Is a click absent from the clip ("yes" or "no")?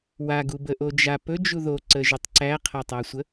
no